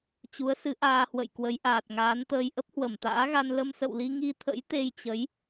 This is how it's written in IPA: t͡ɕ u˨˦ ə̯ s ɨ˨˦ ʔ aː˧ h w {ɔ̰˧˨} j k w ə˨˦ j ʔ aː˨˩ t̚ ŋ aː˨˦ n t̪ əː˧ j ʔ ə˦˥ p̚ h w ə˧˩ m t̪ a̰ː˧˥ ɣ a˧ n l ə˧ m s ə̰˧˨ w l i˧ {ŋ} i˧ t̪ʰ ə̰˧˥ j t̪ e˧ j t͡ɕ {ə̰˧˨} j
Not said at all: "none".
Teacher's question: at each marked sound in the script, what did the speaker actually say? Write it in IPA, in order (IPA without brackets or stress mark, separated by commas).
ə̰˧˨, ŋ, ə˨˦